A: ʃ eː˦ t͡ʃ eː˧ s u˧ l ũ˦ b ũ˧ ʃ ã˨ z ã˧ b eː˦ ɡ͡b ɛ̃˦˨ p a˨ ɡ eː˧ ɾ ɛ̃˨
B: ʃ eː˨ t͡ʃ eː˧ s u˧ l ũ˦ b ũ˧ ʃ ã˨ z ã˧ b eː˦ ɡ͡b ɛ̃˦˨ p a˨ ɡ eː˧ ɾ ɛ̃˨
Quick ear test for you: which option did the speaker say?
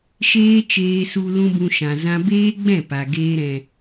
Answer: A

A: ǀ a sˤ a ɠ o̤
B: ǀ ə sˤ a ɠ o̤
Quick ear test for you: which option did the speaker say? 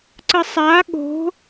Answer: B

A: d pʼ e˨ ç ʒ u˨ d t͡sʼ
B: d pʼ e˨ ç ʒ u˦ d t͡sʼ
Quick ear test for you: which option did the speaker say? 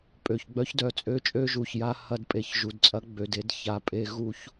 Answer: A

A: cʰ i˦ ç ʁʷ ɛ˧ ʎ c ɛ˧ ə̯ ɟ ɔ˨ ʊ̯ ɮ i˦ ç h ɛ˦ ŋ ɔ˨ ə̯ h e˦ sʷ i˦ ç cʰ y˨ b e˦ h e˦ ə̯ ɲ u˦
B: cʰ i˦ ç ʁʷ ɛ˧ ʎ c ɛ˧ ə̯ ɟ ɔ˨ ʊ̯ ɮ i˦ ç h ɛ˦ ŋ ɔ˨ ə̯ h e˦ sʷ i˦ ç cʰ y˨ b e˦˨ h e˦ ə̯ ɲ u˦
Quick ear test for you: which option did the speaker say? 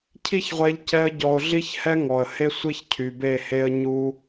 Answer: B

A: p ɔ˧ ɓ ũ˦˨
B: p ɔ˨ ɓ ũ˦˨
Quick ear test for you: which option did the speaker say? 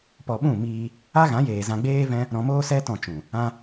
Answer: A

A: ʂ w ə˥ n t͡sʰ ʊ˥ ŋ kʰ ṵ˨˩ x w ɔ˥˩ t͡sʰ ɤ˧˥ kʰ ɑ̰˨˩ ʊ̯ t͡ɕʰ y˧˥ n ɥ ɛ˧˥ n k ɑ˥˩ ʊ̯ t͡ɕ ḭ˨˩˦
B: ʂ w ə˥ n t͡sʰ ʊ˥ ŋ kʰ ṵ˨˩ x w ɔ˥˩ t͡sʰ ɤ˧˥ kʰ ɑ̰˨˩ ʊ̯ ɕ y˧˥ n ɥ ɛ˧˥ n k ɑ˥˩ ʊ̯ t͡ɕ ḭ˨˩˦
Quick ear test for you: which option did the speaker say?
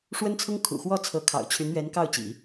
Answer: A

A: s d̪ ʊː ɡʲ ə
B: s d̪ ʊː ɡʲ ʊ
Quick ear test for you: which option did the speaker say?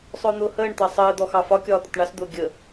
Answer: A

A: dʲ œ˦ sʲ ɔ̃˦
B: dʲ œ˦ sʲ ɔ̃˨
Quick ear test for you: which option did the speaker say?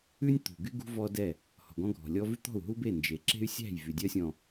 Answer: B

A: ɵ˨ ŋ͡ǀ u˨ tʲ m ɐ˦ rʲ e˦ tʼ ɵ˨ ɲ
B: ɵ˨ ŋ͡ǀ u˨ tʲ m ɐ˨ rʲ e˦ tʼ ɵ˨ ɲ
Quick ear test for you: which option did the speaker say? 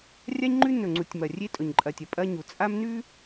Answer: B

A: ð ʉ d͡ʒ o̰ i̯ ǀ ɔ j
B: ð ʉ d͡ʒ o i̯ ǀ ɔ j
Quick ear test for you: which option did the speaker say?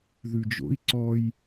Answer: A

